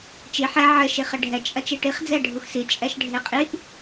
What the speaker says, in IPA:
t͡ʃ i ħ ɛ ʕ ɘ ʃ i χ ɘ ɖʱ ɛ t͡ʃʼ ɐ t͡ʃ e ʈ i χ d͡z ɛ ɖʱ u x s i t͡ʃʼ ɛ ʃ ɖʱ e qʼ i ʔ

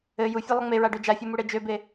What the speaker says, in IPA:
ɘ j u fʲ ɘ lˠ ə ŋ͡m e ɹ a ɖ ø d͡ʒ a fʲ u m u ɽ e d͡ʒ ø b e

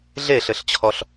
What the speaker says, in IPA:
ɮ e ɬ ɘ ɬ t͡ɕʰ ɔ ɬ

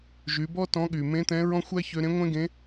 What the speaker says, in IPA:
ʒ y˩˧ b ɔ˥ t ɔ̃˧˥ ɠ y˩ m ẽ˧˥ t̪ ɛ̃˧˥ ɹ ɔ̃˥ xʷ æ˥ ç ø˧ ɾ ẽ˧˥ ŋʷ ẽ˥ ɡ ẽ˧˥

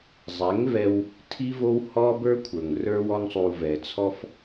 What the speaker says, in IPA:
zˤ ɛ˨˦ ŋ v ɛ˧ w | tʰ i˦ v o˦ w h ɔ˦ b ə˞˦ kʷʰ ə˞˨ ŋ r ə˞˦ w ɔ˦ ŋ sˤ u˧ v ɛ˨ t͡sʰ ɔ˦ f

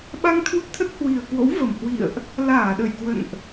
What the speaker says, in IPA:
ɓ a˧ ŋ t̪ʰ u˧ t̪ʰ ə˦˥ t̚ h w i˨˩ ə̯ k w o̰˧˥ w v ə˨˩ m h w ḭ˧˨ ə̯ ʔ | l aː˧˩ ɗ ə˧˩ j k w ə̰˧˨ n ʔ

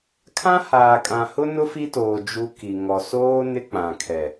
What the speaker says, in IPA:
kʰ ã˦ h aː˨ kʼ ã˨ h ʊ˦ n ʊ˦ f i˦ t oː˨ d͡ʒ u˦ k i˨ ŋ ɔ˨ s oː˦ n ɪ˦ k͡p ã˨ kʰ ɛ˨

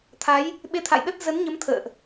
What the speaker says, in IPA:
t̪ʰ a˨˦ j | ɓ e˧ t̪ʰ a̰˧˨ j ɗ ə˦˥ t̚ z ə˨˦ n ɲ ə˨˦ m t̪ʰ ə̰ː˧˨ ʔ

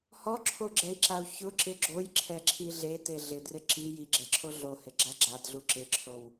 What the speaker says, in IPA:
h ɔ ǁʰ o ɡ͡ǁ ɛ i̯ ǁ a u̯ ç ʊ ǁ ɪ ɡ͡ǁ o j ǁʰ ɛ ǁʰ i ɮ e t e ɮ ɪ d r ɪ ǁ i j i ɡ͡ǁ ɛ ǁʰ o ɮ o h ɪ ɡ͡ǁ a ɡ͡ǁ a d ɮ u ǁ ɪ ǁʰ o w

